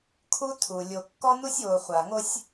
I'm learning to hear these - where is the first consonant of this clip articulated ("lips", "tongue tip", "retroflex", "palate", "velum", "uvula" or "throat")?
velum